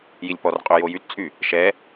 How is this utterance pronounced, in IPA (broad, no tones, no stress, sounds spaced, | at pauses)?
j i lʲ p ɔ r qʼ ø j o j y t t͡sʼ y | ʃ ɛ